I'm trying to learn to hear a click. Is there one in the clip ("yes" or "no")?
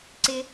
yes